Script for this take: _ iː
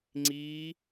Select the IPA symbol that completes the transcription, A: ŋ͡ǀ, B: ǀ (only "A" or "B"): A